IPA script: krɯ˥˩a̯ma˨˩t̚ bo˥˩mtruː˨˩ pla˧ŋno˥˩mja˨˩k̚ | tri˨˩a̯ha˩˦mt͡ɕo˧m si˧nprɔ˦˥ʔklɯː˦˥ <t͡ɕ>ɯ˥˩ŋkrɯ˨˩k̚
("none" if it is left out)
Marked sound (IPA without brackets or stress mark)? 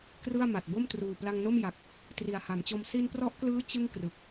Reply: t͡ɕ